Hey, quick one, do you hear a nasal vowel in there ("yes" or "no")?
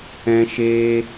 yes